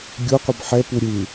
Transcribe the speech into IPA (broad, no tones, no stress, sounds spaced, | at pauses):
ɡʲ o qʷ ʌ b ħ ɛ p u ɾʲ ɯ